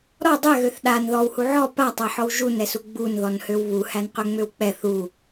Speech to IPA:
ɾɔ dˤɛɣøθ ɗan ðɔwhu ʕɔ patˤæħɔw ʒunɛsu ɡ͡bunðɔnhøw βuhænqøŋ͡møw k͡pɛθ u

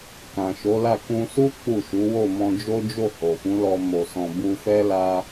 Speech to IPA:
kã˨ʃo˨˦la˦˨ kũ˧su˦ k͡pu˦˨ʃu˨˦ wo˦˨mɔ̃˧d͡ʒo˦d͡ʒo˦˨ ho˨fũ˨˦lɔ˧ mo˨sɔ̃˨ bu˧ fɛ˦ la˦

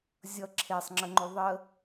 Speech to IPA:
zʲʌ ǁʰesˤŋ͡ǁəŋ͡ǃo ðˤə

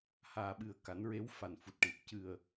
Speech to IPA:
haː˨˩ɓɨ˨˩ə̯ ka˨˩˦nɹe˧˥w fa˨˩nfu˨˩t̚ʈi˨˩t̚ cɨ˨˩ə̯

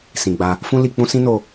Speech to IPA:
sĩ˨ɡ͡ba˧ | fũ˦li˧k͡pũ˦ sĩ˦no˧

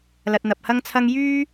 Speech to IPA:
lɐ˧t̚n̪ɐ˧p̚hɐ˥ŋt͡sʰɐ˥ŋ jyː˥

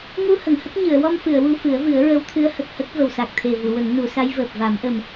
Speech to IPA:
ŋu˧ hə˨˩˨ŋhə˦˥k̚ ɲɨ˨˩˨ə̯wɔ˧mfɨ˨˩˨ə̯ wu˧fɨ˨˩˦ə̯vɨ˨˩˦ə̯ ɹə˧˥wt̪ʰɨ˧˥ə̯ hə˨˩k̚hə˦˥k̚ və˨˩wsa˨˩k̚ t̪ʰe˨˩ vu˨˩˨wə˨˩˦ŋnu˨˩˦sa˧˥j vəː˨˩p̚va˨˩˦mʔə˨˩m

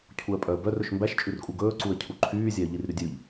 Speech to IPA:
cʰuə̯pʼœə̯bœr ɵʃmbæʃ t͡ʃʼʉrkʼuɡɵː ǀuə̯cʰuǃʰyː zʲæə̯ʎirɾydʲʉʎ

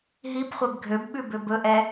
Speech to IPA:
ɦibχʷɛb ɡʱøbɓʉ bøbɵʔɛ

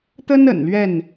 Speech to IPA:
t̪ə˦n ə̰˨˩nlɥɛ˥˨n

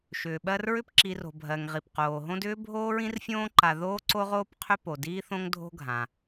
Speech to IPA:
ʃʏː˩ɓɜ˦r ɹʏ˦pǁi˨ro̤˩ bʱɜ˩ŋ ʁi˩p qoː˩ɦõ˦dʏː˥ bʱoː˥ɹĩ˥rfʲõː˥ǃa˨ ðoː˥ǀo˥ʁoː˥p qʰʏ˥po˩ diː˦θõ˦ŋ dʱo̤˦ɡʱã˩

